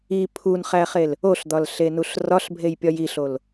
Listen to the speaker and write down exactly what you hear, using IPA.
i pʰunχæχel | oɬd̪ɒlɬenuɬ rɒɬbʱejpʲɒj iɬol

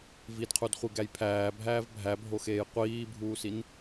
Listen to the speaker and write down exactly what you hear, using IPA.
vidqʰudχʷiɡæj pʰæːbʱæːv bʱæbʱoxeːj qʷiːbʱuːsin

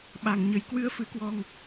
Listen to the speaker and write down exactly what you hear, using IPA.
ɓa˨˩ŋɲə˨˩j kwɨ˧ə̯fɨ˨˦kwɔ˧ŋ

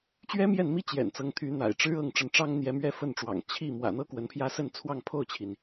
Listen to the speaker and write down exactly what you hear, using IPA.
t͡ɕɥɛ˥mjɛ˥˩nmi˥ t͡ɕjɛ̰˨˩nt͡sɤ˧˥ŋt̪ʰy˧˥n̪a̰˨˩ɪ̯ ʈ͡ʂɻ̩˥ ɤ˥˩ŋʈ͡ʂə˧˥n ʈ͡ʂɑ˥ŋn̪jɛ˧˥mɥɛ˥ fə˥˩nʈ͡ʂwɑ̰˨˩ŋ t͡ɕʰi˥˩ mwä̰˨˩n̪ɤ˥ kwə˧˥npʰjä˥ sə˥˧nt͡sʰwɑ˥˧ŋ pʰo˥˩ʊ̯t͡ɕʰi˩n

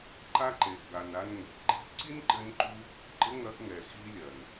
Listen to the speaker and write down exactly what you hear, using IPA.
ǃa˦ǃe˨ʔɡa˨na˧n ŋe̤˨ʔɡ͡ǃi̤˦ʔ ǀi˦nǃɘ˧nǃu˧ | ɡ͡ǃɘ˦ŋɐ˧ʔŋɛ˨ xi˧lʲɐ˨n

